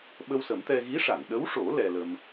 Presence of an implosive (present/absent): present